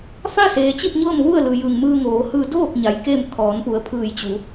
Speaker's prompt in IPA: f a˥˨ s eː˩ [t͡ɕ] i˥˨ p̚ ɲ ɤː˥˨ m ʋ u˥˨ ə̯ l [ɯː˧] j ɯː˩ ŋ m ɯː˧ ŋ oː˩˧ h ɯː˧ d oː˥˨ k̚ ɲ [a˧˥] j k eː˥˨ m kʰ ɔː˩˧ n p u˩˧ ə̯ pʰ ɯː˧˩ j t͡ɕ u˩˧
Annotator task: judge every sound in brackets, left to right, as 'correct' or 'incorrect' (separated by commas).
correct, incorrect, incorrect